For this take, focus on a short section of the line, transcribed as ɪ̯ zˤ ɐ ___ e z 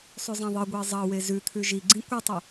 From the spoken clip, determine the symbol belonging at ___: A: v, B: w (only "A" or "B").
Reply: B